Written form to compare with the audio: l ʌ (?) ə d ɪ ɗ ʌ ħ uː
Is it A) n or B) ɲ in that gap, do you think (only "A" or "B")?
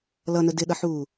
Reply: A